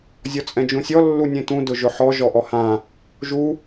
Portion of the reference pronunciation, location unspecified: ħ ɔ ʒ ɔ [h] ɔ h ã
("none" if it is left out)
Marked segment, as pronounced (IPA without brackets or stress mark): ʔ